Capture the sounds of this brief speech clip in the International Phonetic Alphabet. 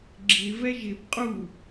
ɡ͡ǁɪ vɛʒɪb qʼu

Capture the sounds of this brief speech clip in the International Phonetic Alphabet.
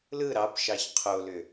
lɯ ɾɑpʃɑç qʰolʏ

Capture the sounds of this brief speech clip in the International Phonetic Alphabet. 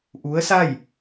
ʔu˧˥ə̯sa˥˨j

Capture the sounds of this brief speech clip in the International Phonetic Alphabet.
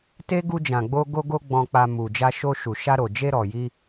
te˦ ɡu˧d͡ʒã˨ɡ͡bo˧ ɡo˧ɡo˧ ɡ͡bɔ̃˧k͡pa˧ mu˨d͡ʒa˧ʃo˧ʃu˨ ʃa˧ɾo˨d͡ʒe˧ ɾɔ˨ji˧

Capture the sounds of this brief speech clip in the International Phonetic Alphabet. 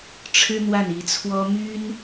ʈ͡ʂʰɻ̩˥n̪wa˥˩n i˧˥t͡sʰwɔ˥ my˥n

